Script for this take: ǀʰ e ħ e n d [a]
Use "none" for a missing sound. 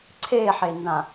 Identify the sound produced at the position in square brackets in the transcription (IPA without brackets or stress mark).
ã